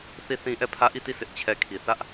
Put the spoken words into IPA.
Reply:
θ i˦˨ θ ĩ˦ ʔ ɛ˦˨ pʰ ä˦ ʔ i˦˨ t i˦˨ sʰ ɪ˦ ʔ t͡ɕʰ ɛ˦ kʰ i˨ θ ä˦ ʔ

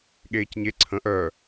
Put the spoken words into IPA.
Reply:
ɠ eː c ɲ e ǀʰ ə̃ ʔ œ

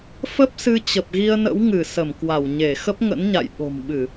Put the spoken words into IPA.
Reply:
f ə˦˥ p̚ s ɨ˧ t͡ɕ ə˨˩ p̚ ɣ i˧ ə̯ n ə̰˧˥ w ŋ ɨ˧˩ s ə˧˩ m k w a˧˩ w ɲ e˧˩ x ə˦˥ p̚ ŋ ə̰˧˥ n ɲ a̰˧˨ j ɓ o̤˨˩ m ɓ ɨ˧˩˨

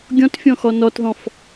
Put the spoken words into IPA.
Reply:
ɡʲ ɔ̃ t fʲ ɔ̃ x ɔ n ɔ t ð ɔ̃ f

